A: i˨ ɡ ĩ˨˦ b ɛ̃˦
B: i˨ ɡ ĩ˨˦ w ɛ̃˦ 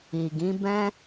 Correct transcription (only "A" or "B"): A